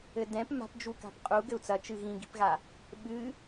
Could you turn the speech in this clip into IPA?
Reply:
ɘ d ɛ̃ p m a̤ p d͡ʒ u k a̤ p qʼ u ɡ ɘ u̯ t͡s ɐ t͡ʃ ɨ ɣ ĩ ɡ i̤ p ɣ a | ɓ ɨ

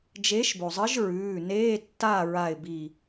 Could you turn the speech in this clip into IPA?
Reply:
d͡ʒ e˨˥ ʃ b o˩ zˤ ɨ˨˥ ʒ ɹ ʉː˩˧˩ n eː˧˥˧ tː a˥˨ ɹ a˧˩ ɪ̯ b i˧˩

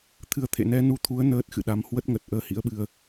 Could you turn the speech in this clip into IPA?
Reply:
t̪ʰ ɨ˨˦ ə̯ t̪ʰ ḛ˧˨ n ɛ˧ n u˧ t̪ʰ u˨˦ ə̯ n əː˦˥ t̚ x ɨ̰˧˨ ɗ a˨˦ m h w ə˦˥ t̚ ŋ ə˨˩ t̚ ʔ əː˧ h ḭ˧˥ ə̯ ɓ ɨ˧ ə̯

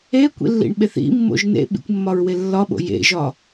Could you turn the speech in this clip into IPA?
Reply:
e kʷ ḭ lː ḭ ɳ ɓ e θ ḭ mː o̰ ʒ n ḛ ɓ ḭ kʷ mː ɒ ɹ w e lː ɒ ɓ o̰ j ḛ ʒ ɒ

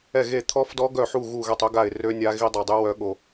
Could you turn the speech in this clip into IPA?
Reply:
ɛ˦˨ ɣ e˦˨ t̪ʰ ɔ˦˥ f d ɔ˦˥ ɡ œ˦˨ ħ u˦˨ ɣ u˦˨ ɣ ɛ˦˨ tˤ ø˦˥ ɡ a˦˨ ɪ̯ r ø˦˥ nʲ a˦˥ ɣ i˦˥ dˤ a˦˨ dˤ y˦˥ w œ˦˥ ɠ o˦˨

